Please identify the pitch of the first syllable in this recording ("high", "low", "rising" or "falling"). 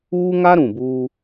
high